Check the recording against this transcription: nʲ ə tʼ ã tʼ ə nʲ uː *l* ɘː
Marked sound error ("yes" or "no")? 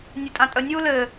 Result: no